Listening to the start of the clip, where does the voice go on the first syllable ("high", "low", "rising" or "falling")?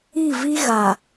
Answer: falling